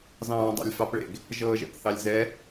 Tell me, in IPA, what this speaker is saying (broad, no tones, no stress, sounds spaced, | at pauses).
z ɑ̃ː dˤ ɑ̰ lʲ f ɑ p ɭ ḛ ɡ | ʒ ɤː ʒ ɛ̰ p θ ɑ lʲ z ɛ